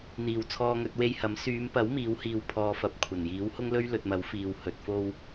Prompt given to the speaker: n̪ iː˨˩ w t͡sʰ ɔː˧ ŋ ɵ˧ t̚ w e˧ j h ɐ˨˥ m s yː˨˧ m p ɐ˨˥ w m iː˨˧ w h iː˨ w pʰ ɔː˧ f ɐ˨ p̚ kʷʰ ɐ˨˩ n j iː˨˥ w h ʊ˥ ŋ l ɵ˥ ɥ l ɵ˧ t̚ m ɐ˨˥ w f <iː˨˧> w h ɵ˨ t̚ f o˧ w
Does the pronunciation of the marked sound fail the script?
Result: yes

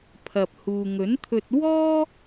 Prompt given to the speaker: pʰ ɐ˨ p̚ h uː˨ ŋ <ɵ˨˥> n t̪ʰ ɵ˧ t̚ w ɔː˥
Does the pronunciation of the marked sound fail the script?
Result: no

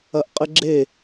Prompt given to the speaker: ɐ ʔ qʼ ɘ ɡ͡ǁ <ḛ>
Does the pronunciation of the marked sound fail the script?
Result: yes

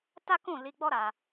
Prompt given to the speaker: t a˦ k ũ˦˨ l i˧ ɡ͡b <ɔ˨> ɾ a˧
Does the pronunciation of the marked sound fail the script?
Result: yes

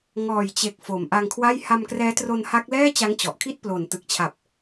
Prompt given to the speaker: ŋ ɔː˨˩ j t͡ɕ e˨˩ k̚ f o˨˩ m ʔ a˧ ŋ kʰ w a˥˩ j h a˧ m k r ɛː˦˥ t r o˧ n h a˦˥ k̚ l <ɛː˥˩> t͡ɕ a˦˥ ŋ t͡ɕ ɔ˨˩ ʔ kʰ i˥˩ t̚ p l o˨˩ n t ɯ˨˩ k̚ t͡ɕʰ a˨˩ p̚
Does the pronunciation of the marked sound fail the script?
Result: no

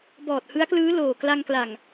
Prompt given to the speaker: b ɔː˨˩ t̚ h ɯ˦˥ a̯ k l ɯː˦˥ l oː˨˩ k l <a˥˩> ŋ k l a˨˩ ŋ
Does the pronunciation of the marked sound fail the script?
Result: yes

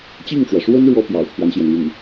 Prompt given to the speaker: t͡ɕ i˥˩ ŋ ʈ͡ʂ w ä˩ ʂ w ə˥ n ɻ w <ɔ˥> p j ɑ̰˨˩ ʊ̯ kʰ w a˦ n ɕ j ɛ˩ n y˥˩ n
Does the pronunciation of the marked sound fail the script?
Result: no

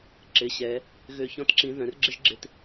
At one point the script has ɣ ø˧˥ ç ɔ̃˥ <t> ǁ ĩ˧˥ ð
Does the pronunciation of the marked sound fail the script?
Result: no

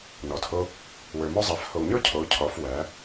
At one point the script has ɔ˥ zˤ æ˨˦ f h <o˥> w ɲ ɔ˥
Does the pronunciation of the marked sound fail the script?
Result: yes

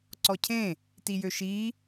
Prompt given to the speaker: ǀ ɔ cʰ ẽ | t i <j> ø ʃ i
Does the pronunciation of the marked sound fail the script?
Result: no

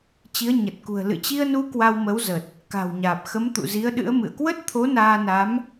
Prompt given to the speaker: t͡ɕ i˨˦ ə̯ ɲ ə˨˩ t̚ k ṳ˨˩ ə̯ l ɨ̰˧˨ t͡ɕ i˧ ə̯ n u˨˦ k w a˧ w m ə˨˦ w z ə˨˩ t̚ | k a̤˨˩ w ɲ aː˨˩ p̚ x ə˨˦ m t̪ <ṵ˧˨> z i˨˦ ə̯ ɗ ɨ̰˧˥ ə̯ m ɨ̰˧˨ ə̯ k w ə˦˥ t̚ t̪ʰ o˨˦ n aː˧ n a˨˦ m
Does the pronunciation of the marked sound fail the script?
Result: no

